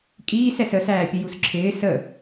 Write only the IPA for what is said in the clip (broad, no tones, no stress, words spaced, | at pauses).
kʼiːsɛs əsæːpʲə jusǁʰɪː sə